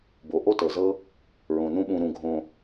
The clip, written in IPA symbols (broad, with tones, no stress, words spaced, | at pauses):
bo˩ʔo˥tɤ˩zɤ˦ | ɹõ˩nũ˦ɓũ˨ ɾũ˨ ɡʱõ˨